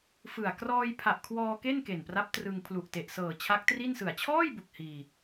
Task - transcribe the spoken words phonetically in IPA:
fɯ˨˩a̯ krɔː˧jpʰa˨˩ʔkʰwɔː˧ ke˥˩nke˨˩npra˦˥p̚ trɯ˧ŋ pʰlu˨˩ʔte˨˩ʔ sɤː˨˩t͡ɕʰa˦˥k̚tri˥˩n sɯ˨˩a̯t͡ɕʰɔː˥˩jbu˨˩k̚ hiː˧

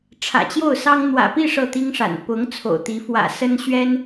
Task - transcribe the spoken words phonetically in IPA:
ʈ͡ʂʰä̰˨˩t͡ɕjo˥˩ʊ̯sɑ˥ŋ n̪wä̰˨˩pi˥˧ ʂɤ˥˩t̪i˥ŋʂa̰˨˩n pʊ˧˥ŋ t͡sʰo̰˨˩ʊ̯t̪i˧˥ fwä̰˨˩ sə˥nɕɥɛ˥n

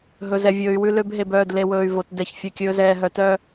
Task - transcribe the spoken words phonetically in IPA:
ɦɵ˨zɛ˨vʲɵː˨y̯ wʉ˦lø˦b ɦe˨bœː˦˨d le˨wɵː˨y̯ vo˨t dɛ˨ç fʲœ˨kʲɵː˨ zɛː˨ɦœ˨tœ˦

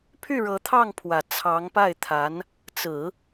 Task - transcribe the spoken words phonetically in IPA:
pʰy˥˩ɻɤ˧˥t̪ʰɑ˥˩ŋpʰwä˨˩ t͡sʰɑ˧˥ŋpa˥˩ɪ̯ t̪ʰa˧˥n | t͡sɹ̩˨˩˦

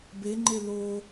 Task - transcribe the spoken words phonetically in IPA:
beŋ͡ǃe lo

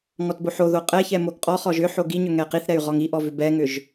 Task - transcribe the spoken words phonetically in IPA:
ŋɔtboħoðo qʼɛçɛ moɡqʼɔχɔʒ ʏ ħoɡiɲʏ ŋɛqiθɾɛy̯ ʁɔŋiʔɔ vʏbɛŋʏʒ

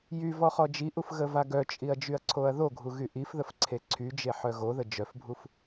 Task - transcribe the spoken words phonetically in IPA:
jy vɔχɔd͡ʒiʔuf ɣəvaɡœt͡ʃʼiɐ̯ d͡ʒyɐ̯ǀʰoɐ̯ðoɡʱu ɣyʔifðəf ǀʰeǀʰyd͡ʒe ħœɣoðə d͡ʒœfbʱuf

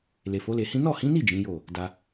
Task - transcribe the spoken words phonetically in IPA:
le˨fo˨˦le˧hĩ˦ nɔ˦˨hĩ˨˦ni˦˨ d͡ʒĩ˨˦jo˦˨ | da˦

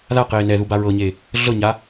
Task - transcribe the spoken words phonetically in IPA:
ðaqeː nɛðuba ɹɤɲeː | ɮɤɲaː

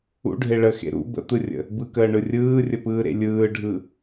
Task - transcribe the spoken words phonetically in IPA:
ṵɖʱe ɭəxḛ ɾṵ bə̰t̪ɯrʲə̰ | bɯkəːɳɯ rʲɯːrʲəpɯːɾḛ lʲɯːɖʱɯ

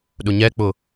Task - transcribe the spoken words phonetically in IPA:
ɗʊɲɛk͡pʊ

